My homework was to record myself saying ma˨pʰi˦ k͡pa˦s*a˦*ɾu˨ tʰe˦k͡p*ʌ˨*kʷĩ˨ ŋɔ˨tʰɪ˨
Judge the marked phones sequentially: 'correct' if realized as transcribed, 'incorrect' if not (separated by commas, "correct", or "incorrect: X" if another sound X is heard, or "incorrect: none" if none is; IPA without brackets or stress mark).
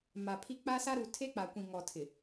correct, incorrect: a˨